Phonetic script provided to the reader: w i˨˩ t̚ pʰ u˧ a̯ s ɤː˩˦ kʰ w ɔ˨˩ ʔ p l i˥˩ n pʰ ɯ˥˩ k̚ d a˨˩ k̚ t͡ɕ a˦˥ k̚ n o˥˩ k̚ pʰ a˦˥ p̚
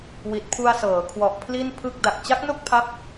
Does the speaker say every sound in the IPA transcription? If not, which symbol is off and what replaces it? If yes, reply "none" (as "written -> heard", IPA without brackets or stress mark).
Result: p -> pʰ